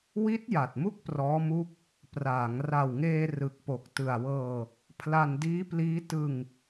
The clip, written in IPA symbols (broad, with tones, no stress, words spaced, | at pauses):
wi˦˥t̚ ja˨˩t̚mu˥˩k̚prɔː˦˥mu˦˥k̚ | praː˩˦ŋ ra˨˩wŋeː˧ rɯ˨˩k̚po˨˩k̚ tɯ˨˩a̯wɤː˧ | pʰla˧n diː˦˥pliː˦˥ tɯ˧ŋ